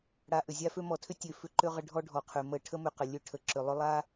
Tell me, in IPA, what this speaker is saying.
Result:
ɽa˨ʔʏ˩zʲa˦fø˦ mɔ˩tʰʏ˥ tʲø˨fʏ˦ǃø˦ ʁə˦ɖʱɔ˥ɖʱɔ˩qʰø˩ mə˨ ʈʰə˥mʏ˨qə˩lʲø˦ ʈʰə˩ǁø˩ lˠʏ˦lˠa˥

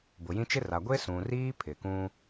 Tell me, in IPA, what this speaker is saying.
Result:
bʊ˨jĩ˦ t͡ʃɪ˦ra˨ ɡʷe˦sũ˨riː˦ pʰɪ˨ kũ˦

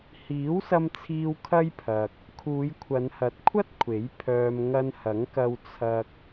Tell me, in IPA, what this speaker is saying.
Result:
hiː˨˥wsɐ˧mt͡sʰiː˧w kʰɐ˥jpʰɐ˨k̚ | kʰuː˨˧jkʷʰɐ˨˧nhɐ˨˥t̚kʷʰɐ˥t̚ kʷʰe˨˥jpʰœː˧m ŋɐ˧nhɐ˨˥ŋkɐ˧w t͡sʰɐ˧k̚

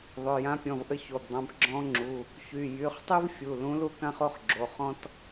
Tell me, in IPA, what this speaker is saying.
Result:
ðˤø˩˧˩jã˧˥pʲɔ̃˩˧˩v ʔə˥ço˩˧˩bdˤã˧˥b ɡ͡ǁɔ̃˧˥ŋ͡ǁu˩˧˩ | çy˩˧˩ jy˩˧˩χtˤy˥v fʲu˩˧˩lũ˧˥ lu˥kã˥χo˥χɡ͡ǁo˩˧˩ χɔ̃˥t

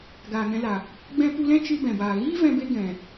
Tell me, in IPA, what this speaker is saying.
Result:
ɡaː˨ŋɛ̃˧la˨ | ɡ͡bɛ̃˦ pu˧lɛ̃˦ t͡ʃɨ˧ bɛ̃˨baː˨ ɣiː˦vɛ̃˧be˧ ɡɛ̃˨

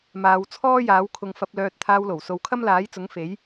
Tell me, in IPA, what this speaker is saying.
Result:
maː˨˧wt͡sʰɔː˥jaː˨˥wkʰʊ˧ŋ fɐ˧p̚lœː˧t̚ t̪ʰaː˧wlo˨˩wso˨˧w kʰɐ˥mlaː˨˥jt͡sʊ˨˥ŋ fe˨˥j

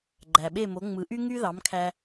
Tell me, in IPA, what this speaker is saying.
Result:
ɡ͡ǃæ˩ɓe˥˩mo˩˥ŋ͡mɯ˩˥ ʔy˥ ŋy˥ðɑ˩˥mkʰæ˧

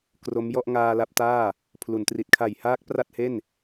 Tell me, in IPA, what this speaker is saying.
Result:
kro˦˥m jɔ˥˩ʔŋaː˧la˦˥p̚taː˥˩ | pʰlu˩˦ntri˨˩t̚ kʰa˨˩jhaː˦˥k̚ pra˥˩t̚he˥˩n

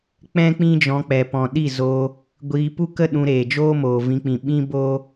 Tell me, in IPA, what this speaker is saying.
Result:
k͡pɛ̃˦ k͡pĩ˦d͡ʒɔ̃˧k͡pɛ˨ pɔ̃˨ɗi˦˨zoː˧ | ɡʷiː˧pu˦ kə˦ ɗũ˧ɾeː˨ d͡ʒoː˦moː˨vĩ˧k͡pĩ˨ ɓĩ˦boː˦

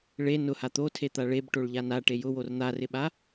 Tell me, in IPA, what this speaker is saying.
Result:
ɭe nʊha t̪otʰet̪a ɭebʈoɭʎan aʈe jʊwor n̪arɪɓa

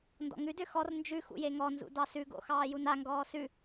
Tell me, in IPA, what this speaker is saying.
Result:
ndɔ̰ŋʉdø xɔr nd͡ʒʉ xṵjeŋɔnzṵ dɑsʉɡo̰ xɑːjunaŋɡɔː sʉ

